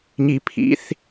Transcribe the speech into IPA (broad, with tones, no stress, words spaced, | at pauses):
ɲi˧pʰḭ˧˥˧θ